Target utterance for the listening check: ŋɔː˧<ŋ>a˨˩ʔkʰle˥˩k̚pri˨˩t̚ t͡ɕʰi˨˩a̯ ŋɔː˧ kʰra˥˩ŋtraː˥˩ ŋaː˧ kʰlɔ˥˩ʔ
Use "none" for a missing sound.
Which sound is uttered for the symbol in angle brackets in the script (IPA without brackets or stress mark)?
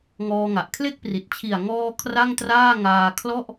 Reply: ŋ